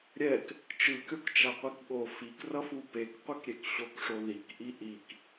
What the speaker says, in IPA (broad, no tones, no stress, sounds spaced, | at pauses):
ɾʲ ɛ k | t͡ʃ ɯ kʲ o k t͡ʃ a qʷ i k ɠ o f i k r ʌ f u p e k qʷ e k ɾʲ e k ɕ o k ʂ o ð i k ʔ i ʔ i k